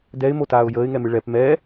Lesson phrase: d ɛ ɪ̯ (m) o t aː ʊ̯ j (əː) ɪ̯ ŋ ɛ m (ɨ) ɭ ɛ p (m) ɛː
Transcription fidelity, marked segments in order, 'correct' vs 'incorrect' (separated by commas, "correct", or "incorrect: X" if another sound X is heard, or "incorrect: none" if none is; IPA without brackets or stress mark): correct, correct, correct, correct